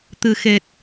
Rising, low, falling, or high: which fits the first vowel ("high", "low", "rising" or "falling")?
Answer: low